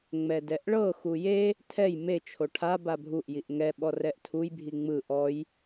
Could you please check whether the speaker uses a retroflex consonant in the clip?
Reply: yes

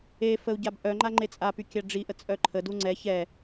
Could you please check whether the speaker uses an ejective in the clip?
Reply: yes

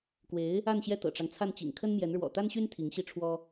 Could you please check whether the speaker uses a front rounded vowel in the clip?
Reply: yes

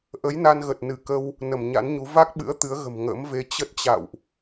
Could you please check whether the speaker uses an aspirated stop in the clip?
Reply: no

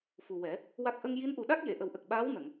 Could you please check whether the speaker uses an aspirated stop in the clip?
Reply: no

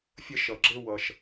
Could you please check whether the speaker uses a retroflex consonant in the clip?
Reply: no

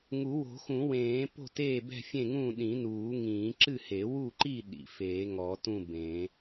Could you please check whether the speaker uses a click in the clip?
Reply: yes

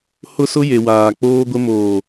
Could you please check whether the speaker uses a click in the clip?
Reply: no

